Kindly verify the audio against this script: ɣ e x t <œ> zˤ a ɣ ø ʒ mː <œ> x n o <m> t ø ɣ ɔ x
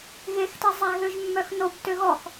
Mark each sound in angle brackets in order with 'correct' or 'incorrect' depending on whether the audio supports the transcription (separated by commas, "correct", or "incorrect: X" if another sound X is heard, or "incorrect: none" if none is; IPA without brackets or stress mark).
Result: incorrect: ɛ, correct, incorrect: b